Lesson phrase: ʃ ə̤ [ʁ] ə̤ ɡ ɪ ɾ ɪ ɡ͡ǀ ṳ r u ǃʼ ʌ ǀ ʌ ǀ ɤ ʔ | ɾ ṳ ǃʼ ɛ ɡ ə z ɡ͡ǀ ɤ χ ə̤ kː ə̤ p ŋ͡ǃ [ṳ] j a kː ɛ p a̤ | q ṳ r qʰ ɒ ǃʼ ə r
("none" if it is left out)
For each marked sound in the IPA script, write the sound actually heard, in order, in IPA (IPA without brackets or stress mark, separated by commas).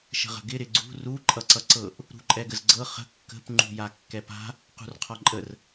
ʁ, ṳ